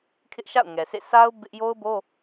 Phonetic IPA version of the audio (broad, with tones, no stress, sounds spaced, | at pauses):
kʰ ɪ˦ ʔ ʃ a̰˦˨ ʊ̯ ŋ ɛ˨ s ḛ˦˨ s a˦ ʊ̯ b ɪ˦ ʔ j o˦ ʊ̯ b o˦